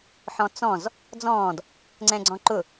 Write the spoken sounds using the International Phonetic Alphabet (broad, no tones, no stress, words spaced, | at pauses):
ħɔ̃t͡sɔ̃z | d͡zɔ̃ːd | ŋ͡ǀɛ̃ɡ͡ǀɔ̃ǃʊ